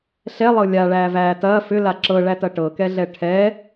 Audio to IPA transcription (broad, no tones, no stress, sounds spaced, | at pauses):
ɬ ɛ lˠ ɤ lʲ a ɭ æː v æː t ɐː f ʏ l a ǁ ɤ ɭ æ t ɐ ʈ ɤ k ɛ ɮ ɛ ʈʰ ɛ